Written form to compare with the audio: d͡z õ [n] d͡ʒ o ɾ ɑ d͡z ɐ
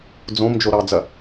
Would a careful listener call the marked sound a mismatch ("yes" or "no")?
yes